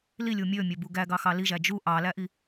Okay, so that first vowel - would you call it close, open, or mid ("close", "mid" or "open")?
close